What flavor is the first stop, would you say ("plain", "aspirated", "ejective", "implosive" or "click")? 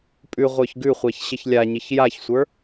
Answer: ejective